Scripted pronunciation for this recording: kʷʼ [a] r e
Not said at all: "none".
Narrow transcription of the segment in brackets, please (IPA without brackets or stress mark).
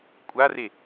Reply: a